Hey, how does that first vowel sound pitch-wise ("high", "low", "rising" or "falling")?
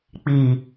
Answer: low